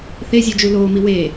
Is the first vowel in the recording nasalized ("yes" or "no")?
no